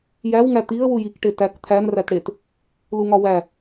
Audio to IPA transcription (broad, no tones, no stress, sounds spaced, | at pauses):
j æ w ŋ æ t̪ i ə̯ w u j i k ʈ e t æ k t̪ʰ æ n r æ t ɽ e t | l u ŋ ɒ w æ